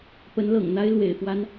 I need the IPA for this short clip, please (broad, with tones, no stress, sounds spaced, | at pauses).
p ə˧˥ n l ɤ̰˨˩ ŋ n̪ a˥ ɪ̯ l w ḛ˨˩ ɪ̯ f w a˥ n